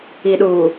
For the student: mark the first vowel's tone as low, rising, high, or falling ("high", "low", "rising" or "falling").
low